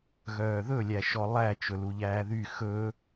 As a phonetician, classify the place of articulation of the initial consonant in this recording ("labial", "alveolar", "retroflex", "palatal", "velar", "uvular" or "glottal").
velar